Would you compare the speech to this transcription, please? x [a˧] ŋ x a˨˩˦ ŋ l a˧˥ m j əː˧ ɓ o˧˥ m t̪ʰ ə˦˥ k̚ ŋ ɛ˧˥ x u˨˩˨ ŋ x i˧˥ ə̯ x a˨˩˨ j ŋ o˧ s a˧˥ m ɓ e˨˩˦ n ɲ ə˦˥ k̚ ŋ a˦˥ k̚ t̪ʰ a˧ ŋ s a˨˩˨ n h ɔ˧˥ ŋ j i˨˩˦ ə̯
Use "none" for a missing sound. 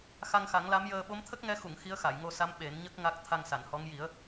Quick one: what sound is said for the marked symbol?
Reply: a˧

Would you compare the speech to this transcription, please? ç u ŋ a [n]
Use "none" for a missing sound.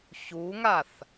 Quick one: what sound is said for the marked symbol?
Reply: θ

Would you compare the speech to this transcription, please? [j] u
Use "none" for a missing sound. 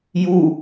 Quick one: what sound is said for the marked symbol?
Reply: j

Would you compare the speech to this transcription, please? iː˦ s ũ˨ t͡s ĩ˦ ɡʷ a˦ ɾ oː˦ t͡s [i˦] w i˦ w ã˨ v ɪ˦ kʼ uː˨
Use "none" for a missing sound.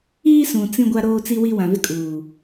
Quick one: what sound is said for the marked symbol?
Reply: i˦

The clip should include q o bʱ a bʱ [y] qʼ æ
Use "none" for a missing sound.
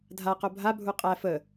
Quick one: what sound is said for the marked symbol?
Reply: u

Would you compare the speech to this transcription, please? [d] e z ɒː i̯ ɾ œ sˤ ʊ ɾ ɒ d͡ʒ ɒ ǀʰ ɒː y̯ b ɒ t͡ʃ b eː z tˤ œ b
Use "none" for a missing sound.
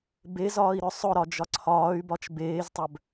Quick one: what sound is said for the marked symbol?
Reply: b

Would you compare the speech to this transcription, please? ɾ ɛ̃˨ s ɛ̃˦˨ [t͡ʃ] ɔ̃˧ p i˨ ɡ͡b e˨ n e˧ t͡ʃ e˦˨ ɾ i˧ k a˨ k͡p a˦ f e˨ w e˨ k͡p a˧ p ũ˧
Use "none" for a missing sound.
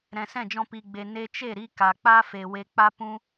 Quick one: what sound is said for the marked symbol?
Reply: d͡ʒ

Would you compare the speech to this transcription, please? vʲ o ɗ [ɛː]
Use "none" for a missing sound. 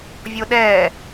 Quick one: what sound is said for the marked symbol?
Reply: ɛː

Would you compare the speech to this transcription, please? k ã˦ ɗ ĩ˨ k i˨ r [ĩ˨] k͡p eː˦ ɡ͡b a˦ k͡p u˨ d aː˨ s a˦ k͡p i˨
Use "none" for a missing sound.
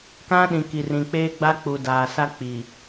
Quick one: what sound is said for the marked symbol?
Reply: ĩ˨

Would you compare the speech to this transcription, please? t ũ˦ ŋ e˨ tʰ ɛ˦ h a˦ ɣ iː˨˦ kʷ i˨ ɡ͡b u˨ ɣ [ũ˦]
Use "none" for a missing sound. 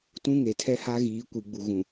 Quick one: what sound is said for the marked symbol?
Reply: ũ˨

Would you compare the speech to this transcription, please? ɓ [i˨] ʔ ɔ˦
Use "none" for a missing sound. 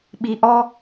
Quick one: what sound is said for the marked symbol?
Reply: i˨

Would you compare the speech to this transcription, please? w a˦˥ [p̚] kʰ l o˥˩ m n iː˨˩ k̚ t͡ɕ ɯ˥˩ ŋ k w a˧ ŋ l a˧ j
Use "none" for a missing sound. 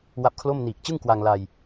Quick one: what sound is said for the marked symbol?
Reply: p̚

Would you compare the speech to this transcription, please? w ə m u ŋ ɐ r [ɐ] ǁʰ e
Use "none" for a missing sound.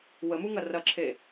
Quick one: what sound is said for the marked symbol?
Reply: ɐ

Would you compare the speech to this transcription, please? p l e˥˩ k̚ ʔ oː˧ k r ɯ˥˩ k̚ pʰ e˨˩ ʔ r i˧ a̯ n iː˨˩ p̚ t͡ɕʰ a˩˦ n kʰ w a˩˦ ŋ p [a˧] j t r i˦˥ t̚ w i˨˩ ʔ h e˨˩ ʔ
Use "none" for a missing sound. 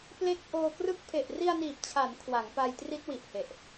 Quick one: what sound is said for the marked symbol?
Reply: a˧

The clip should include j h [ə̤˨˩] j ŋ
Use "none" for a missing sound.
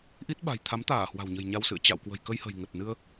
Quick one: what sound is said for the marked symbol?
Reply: ə̤˨˩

